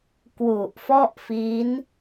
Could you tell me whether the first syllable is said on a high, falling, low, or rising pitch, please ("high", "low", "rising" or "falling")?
low